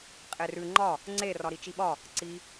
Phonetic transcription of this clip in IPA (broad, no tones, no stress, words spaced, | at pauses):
qʼerʉ ŋ͡ǃɒ | ŋ͡ǀe rɒɾit͡ʃiɓɒ | ǀi